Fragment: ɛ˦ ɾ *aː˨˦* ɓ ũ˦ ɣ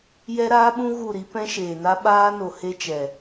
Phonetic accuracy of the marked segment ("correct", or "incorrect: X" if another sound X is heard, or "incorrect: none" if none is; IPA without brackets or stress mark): incorrect: aː˦